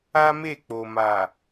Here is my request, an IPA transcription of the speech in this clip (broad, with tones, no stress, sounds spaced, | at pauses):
a˦ m e˦˨ k͡p o˨ m a˨